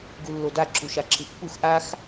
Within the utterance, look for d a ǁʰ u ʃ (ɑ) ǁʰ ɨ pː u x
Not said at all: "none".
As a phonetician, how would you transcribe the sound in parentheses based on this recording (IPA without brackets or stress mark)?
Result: a